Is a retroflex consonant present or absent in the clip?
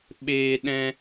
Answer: absent